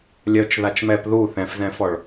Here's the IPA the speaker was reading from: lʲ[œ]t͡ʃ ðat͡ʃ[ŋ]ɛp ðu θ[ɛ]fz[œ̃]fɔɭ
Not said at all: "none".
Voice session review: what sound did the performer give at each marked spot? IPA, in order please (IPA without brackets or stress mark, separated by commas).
œ, m, ɛ̃, ɛ̃